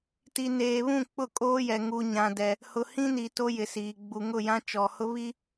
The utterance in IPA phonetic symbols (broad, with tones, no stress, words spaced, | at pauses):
ti˨neː˨βũ˦˨ k͡pʊ˦˨kʼoː˦jɛ˨ ŋu˦ɲã˦dɛ˦ | hʊ˨hĩ˦ni˨ to˦jɪ˨siː˨ ɡ͡bu˨ŋʊ˦˨jã˦ t͡ʃɔ˨hʊ˦βi˦